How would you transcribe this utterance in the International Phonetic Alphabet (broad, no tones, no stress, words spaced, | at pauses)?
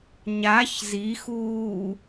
ɲaç zixuː